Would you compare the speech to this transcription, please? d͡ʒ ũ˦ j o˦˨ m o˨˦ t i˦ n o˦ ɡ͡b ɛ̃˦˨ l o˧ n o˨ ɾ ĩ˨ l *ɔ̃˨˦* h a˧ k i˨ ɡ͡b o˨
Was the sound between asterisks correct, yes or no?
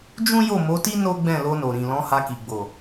yes